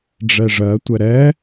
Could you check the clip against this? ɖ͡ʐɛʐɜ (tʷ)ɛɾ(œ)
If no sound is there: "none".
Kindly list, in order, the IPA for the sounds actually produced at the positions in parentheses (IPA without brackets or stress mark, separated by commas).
tʷ, ɛ